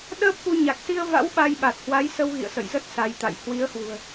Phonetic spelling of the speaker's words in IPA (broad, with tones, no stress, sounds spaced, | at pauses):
ɗ əː˦˥ p̚ k u˧ ɲ a˨˩ k̚ s i˧ ə̯ v a̰˧˥ w ɓ a˧ j ɓ a˨˩ t̚ h w a˨˦ j s ə˧ w ɣ ḭ˧˨ ə̯ s ə̰˧˨ j z ə˦˥ t̚ s a˨˦ j t̪ a̰˧˨ j h w i˨˦ ə̯ h w ṳ˨˩ ə̯